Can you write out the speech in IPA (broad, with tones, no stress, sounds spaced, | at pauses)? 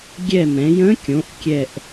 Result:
ɡʲ ɛ˦˨ m ɛ̃˩˧ j ə̃˧˥ kʲ õ˩˧ ʔ kʲ ɛ˦˨ ʔ